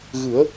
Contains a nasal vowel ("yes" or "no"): no